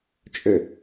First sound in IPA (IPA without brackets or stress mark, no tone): t͡ʃʼ